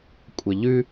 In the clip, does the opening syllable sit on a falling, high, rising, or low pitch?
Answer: low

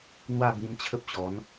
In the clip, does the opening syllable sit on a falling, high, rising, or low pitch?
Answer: falling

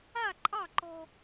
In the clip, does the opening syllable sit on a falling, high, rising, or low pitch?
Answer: falling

